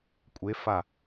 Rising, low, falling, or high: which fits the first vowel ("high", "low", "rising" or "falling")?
rising